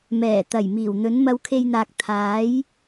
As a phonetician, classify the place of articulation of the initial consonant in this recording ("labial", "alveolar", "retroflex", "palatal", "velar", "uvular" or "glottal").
labial